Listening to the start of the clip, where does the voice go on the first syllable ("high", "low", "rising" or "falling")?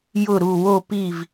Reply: falling